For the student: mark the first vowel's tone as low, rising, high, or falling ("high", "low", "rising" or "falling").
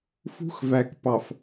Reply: high